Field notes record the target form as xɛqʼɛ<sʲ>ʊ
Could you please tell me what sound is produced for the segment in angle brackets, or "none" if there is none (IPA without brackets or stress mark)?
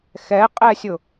sʲ